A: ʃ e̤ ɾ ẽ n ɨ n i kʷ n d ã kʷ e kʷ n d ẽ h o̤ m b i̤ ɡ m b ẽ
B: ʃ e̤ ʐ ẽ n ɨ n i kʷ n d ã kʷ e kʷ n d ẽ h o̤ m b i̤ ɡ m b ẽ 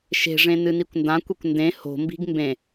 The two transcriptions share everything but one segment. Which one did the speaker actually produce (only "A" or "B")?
B